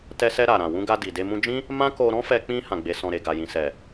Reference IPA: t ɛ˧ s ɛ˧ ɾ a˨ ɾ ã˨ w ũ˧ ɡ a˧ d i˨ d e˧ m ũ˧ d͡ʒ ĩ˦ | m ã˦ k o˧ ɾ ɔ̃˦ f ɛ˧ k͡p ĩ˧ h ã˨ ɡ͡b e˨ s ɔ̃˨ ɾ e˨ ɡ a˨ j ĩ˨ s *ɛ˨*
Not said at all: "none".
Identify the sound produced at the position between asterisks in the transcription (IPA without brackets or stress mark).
ɛ˨